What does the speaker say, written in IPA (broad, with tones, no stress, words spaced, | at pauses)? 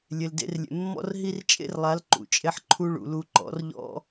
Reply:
lʲe˨ldḛ˧rlʲḛ˨mːɔ̰˦r ɦi˦rt͡ʃʼḛ˦rlˠa˨˦l ǃṵ˨t͡ʃʼe˦ħǃʰu˦ɭṵ˨ lu˧ǃɔ̰˨˦rʎɔ̰˦